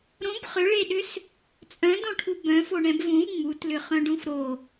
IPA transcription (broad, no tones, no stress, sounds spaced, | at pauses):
ɾ õ b χ ʏ ɭ e ɗ ʏ s | t͡sʼ œ̃ d õ ʈʰ u b œ̃ f o ɳ ɛ̃ b v ũ v ŋ͡m u t l ʏ χ œ̃ ɖ ũ f ɾ o